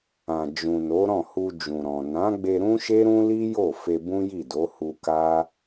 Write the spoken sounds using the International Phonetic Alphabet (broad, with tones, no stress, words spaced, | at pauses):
ã˨ d͡ʒũ˨no˨˦ ɾɔ̃˦˨hu˧d͡ʒũ˨ ɾɔ̃˨ nã˨˦ɡ͡be˧ ɾũ˦ʃe˦ɾũ˦li˦ jo˦˨fe˧ bũ˦ji˦˨do˨˦hu˧ ka˦